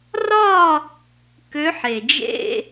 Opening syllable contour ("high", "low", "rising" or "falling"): falling